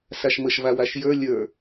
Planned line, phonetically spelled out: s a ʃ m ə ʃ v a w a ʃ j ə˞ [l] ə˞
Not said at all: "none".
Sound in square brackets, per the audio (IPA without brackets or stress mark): lʲ